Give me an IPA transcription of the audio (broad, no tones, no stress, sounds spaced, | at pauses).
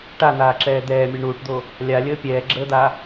ʈ a n̪ aː ǁ ɛː d̪ ɛː mʲ u ɳ uː ʈ d̪ o | lʲ a lʲ əː pʲ ɛː ɡ͡ǁ əː d̪ a